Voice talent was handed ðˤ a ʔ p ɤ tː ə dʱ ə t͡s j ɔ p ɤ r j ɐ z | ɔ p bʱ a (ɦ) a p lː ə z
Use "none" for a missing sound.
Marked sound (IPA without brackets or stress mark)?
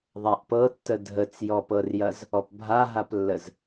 ɦ